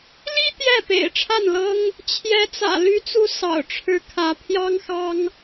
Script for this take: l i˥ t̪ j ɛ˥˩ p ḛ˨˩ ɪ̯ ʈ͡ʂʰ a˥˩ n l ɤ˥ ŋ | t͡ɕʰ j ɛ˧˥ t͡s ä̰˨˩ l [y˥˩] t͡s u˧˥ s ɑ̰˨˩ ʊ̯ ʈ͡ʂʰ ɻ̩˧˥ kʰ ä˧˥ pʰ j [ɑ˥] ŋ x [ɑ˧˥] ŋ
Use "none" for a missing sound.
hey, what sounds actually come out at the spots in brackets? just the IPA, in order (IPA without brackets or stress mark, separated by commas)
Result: y˧˥, ɑ˥, ɑ˥